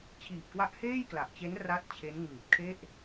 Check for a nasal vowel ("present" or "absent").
absent